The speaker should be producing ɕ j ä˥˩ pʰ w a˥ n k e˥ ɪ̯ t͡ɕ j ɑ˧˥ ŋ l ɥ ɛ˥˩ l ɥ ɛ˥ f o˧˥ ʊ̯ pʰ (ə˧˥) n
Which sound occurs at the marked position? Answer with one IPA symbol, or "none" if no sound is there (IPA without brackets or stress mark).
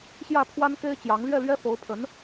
ə˧˥